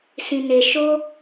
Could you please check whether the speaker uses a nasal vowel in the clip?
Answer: yes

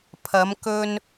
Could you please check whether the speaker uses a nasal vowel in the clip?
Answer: no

